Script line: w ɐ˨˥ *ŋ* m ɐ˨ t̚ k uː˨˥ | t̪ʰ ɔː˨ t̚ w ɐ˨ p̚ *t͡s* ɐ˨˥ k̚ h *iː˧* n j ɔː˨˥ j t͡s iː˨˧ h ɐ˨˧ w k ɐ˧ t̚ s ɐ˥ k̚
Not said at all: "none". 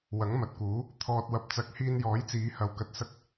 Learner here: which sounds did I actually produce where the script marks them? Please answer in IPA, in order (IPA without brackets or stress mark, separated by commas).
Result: ŋ, t͡s, iː˧